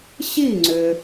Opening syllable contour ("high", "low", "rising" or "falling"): falling